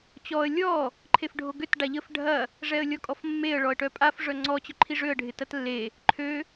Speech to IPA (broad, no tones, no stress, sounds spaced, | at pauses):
t͡ɕ ɔ ə̯ lʲ ɔ | ǃʰ e f ɖʱ o ɡ ø t ɖ a ʎ ə f ɖʱ ɐ | ʐ ɛ ə̯ lʲ ɔ kʼ ɔ f mː e ə̯ ɭ ɔ ə̯ ʈ œ pʼ a f ʐ œ ŋ͡ǀ ɔ t͡ɕ œ ǃʰ i ʐ ø ə̯ ɖʱ ɪ t ɐ t lː e | ǃʰ ø